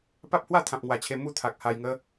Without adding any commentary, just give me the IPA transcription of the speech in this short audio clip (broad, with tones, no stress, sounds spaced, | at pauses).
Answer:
p a˦ p̚ h w a˥˧ t̪ʰ ã˨ p̚ ŋ w a˨˩ t͡ɕʰ e˧ m u˥˧ t̪ʰ a˨ k̚ h a˧ j ŋ ə˦